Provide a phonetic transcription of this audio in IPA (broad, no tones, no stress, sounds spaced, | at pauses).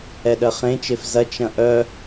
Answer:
ɛ ɗ ɜ χ ẽ t͡ʃ e f z ɐ t͡ʃ ɐ̃ ʔ œ